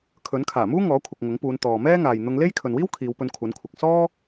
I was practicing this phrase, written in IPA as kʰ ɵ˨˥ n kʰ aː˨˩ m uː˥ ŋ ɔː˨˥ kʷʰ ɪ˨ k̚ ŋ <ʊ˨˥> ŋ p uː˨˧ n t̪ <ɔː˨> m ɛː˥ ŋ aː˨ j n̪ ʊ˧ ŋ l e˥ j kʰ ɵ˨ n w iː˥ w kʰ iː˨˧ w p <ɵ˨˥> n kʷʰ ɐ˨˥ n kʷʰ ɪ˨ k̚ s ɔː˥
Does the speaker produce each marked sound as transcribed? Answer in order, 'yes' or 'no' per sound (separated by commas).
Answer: yes, yes, no